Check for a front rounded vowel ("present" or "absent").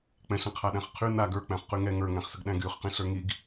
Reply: present